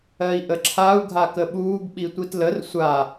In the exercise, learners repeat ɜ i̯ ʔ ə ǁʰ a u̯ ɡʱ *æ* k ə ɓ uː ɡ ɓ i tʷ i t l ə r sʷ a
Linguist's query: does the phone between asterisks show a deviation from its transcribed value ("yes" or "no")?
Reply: yes